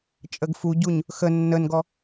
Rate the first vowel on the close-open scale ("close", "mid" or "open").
mid